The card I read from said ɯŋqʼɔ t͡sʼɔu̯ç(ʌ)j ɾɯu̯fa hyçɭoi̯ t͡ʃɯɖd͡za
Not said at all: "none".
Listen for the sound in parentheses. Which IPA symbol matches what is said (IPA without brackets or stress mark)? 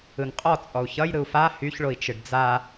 ʌ